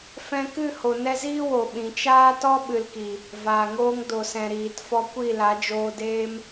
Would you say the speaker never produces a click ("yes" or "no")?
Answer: yes